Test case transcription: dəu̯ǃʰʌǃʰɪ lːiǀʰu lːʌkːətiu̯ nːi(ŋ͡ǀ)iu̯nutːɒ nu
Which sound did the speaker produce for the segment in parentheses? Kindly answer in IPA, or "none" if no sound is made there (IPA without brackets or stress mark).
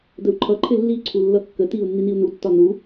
n